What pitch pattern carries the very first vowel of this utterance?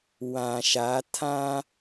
low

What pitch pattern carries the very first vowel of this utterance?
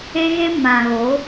high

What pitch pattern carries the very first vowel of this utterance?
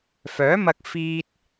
rising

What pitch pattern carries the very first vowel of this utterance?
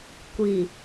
low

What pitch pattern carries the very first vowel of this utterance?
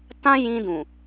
high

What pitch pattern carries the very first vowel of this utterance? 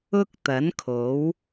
high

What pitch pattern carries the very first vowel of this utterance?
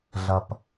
low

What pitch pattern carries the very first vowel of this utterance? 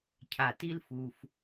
low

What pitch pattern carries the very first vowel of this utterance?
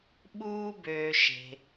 high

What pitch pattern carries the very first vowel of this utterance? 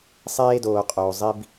high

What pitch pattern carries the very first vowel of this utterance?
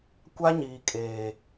high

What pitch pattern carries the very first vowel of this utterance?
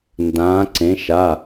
rising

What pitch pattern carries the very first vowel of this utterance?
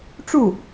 falling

